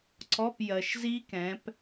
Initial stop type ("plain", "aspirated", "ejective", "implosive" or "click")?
click